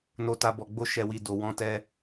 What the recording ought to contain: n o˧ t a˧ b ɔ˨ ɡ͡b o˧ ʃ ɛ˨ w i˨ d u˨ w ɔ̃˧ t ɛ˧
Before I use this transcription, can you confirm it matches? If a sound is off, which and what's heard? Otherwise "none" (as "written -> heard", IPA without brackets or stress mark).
u˨ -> o˨